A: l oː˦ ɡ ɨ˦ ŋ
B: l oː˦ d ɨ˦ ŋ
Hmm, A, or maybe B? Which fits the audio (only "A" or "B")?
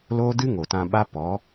B